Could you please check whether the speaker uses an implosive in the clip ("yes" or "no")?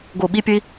yes